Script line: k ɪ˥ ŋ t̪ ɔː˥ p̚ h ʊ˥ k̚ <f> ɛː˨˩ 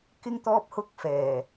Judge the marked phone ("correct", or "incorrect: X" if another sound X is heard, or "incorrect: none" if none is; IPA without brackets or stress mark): correct